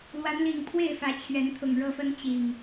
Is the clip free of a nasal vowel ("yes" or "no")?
yes